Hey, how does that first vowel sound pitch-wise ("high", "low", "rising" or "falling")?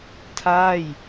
falling